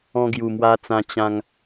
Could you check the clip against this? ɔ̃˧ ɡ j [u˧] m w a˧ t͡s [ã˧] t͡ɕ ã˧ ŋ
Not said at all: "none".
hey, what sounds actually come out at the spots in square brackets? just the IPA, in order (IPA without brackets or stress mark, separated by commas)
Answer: u˨˩, ã˧